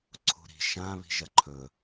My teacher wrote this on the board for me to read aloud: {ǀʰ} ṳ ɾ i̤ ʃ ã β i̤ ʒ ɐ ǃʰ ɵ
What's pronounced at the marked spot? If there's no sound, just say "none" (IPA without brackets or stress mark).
ǀʰ